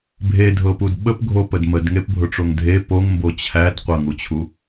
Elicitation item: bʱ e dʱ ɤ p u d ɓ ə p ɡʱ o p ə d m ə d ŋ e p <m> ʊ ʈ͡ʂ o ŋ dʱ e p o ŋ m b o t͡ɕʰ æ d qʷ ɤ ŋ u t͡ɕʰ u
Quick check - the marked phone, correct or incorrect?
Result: incorrect: bʱ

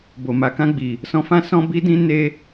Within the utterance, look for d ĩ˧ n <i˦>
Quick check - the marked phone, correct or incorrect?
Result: incorrect: e˦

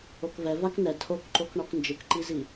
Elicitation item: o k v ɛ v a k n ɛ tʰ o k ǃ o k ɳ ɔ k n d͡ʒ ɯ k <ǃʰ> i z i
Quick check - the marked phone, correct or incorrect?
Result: incorrect: ǃ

